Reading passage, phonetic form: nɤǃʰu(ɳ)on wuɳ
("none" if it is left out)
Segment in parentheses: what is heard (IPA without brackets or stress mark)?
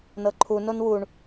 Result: n